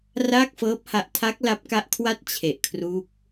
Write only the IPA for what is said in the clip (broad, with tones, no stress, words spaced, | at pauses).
raː˥˩k̚fɤː˦˥p̚ha˦˥ʔ tʰa˦˥k̚ la˦˥p̚ka˦˥ʔkʰwa˥˩t̚ t͡ɕʰe˨˩ʔkʰruː˦˥k̚